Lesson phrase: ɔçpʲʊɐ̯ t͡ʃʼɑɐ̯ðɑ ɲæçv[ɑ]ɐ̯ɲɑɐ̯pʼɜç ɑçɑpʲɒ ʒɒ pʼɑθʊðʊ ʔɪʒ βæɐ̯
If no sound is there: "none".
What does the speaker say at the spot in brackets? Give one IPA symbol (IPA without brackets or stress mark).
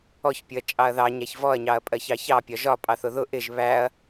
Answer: ɔ